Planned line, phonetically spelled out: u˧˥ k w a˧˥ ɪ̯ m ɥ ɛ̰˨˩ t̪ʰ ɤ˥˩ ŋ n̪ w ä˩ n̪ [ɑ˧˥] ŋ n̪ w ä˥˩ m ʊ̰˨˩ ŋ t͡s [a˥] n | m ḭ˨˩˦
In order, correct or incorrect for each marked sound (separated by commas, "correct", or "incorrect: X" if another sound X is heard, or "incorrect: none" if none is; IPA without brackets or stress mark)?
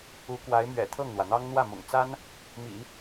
incorrect: ɑ˥, correct